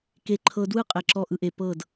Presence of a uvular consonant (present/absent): present